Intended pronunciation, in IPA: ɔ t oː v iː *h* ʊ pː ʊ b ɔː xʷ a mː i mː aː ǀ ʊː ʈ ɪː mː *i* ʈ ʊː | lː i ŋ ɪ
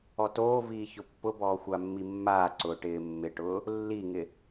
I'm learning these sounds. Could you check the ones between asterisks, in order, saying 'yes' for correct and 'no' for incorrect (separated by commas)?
no, no